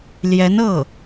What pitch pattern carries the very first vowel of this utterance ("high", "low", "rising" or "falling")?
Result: rising